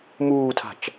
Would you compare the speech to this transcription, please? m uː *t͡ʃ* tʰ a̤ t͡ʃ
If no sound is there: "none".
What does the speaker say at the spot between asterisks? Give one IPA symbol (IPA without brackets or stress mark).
none